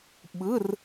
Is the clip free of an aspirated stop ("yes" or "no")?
yes